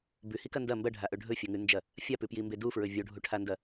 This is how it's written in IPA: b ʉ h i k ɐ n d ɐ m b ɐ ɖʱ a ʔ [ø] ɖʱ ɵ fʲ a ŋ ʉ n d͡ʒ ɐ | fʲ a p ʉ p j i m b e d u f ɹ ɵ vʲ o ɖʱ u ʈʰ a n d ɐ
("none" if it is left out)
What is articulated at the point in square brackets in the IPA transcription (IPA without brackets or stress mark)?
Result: ɵ